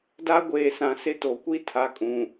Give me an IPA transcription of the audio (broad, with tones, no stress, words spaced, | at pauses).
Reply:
da˦ɡʷeː˨sã˨sɪ˦ to˨kʷi˦tʰa˨˦kʼũ˨